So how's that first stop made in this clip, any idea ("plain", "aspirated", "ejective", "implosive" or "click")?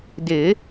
plain